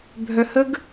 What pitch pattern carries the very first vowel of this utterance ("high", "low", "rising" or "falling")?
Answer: high